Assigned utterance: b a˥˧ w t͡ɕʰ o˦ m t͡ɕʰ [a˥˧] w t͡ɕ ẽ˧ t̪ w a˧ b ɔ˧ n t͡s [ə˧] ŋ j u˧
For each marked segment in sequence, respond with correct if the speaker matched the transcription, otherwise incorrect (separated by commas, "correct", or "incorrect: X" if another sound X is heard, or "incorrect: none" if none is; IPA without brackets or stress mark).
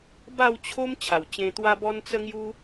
incorrect: a˨˩, correct